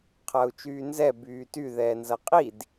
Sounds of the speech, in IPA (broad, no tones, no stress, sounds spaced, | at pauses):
qʰ ɐː u̯ t͡ʃ yː n z ɛ b yː t y ð ɛː n z ɐ qʼ i d